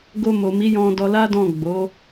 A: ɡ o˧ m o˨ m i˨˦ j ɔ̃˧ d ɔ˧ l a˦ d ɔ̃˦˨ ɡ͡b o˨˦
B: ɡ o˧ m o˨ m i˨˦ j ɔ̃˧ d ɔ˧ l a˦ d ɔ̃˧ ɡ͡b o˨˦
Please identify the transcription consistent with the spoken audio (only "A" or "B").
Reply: A